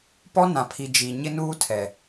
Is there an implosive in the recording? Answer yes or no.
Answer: no